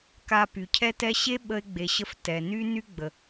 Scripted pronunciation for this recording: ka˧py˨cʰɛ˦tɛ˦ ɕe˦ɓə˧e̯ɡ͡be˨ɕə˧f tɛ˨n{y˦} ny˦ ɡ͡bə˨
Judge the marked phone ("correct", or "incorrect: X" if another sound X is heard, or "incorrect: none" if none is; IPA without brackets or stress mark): correct